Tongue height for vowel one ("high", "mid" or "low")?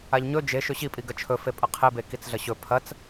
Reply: low